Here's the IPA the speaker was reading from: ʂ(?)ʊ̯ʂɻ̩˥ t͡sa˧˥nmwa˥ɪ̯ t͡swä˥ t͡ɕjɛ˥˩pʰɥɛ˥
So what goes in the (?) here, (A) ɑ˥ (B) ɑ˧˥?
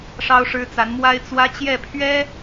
A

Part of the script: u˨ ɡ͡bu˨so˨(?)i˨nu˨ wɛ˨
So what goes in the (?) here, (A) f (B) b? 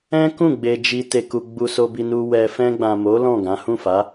B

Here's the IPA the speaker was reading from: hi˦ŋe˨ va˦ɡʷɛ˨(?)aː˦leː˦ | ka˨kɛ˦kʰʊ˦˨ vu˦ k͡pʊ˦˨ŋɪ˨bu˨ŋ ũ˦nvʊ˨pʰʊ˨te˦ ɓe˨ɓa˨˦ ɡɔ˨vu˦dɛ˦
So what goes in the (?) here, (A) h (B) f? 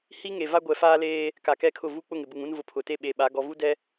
B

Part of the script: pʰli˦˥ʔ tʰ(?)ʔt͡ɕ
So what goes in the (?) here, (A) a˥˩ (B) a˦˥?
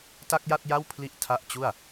B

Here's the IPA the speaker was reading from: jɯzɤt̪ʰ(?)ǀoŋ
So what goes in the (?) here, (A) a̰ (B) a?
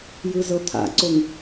A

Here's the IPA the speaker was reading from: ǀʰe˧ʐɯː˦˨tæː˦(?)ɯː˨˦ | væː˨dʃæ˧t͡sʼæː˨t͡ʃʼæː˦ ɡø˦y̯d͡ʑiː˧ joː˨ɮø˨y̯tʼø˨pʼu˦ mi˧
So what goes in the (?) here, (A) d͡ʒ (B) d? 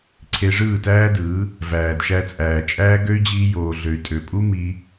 B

